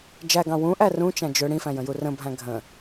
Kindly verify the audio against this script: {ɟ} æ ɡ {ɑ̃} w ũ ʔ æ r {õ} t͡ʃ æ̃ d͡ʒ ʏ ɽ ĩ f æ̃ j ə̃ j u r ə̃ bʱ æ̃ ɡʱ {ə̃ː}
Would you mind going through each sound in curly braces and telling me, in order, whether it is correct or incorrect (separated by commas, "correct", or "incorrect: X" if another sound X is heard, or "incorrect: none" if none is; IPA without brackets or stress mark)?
incorrect: d͡ʒ, correct, incorrect: ũ, incorrect: ə̃